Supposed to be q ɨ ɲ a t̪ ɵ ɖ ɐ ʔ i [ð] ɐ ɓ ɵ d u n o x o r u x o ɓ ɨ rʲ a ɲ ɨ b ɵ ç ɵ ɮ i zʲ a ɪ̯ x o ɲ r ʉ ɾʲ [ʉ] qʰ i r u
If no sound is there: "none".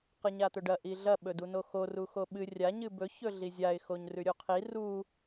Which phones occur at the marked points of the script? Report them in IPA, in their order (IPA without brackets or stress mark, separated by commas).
ɮ, u